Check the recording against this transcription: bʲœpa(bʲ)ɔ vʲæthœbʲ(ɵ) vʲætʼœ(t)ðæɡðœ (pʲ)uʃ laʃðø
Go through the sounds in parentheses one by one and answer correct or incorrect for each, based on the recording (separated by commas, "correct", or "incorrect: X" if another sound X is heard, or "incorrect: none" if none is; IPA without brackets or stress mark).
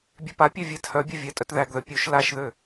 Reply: incorrect: pʲ, correct, correct, correct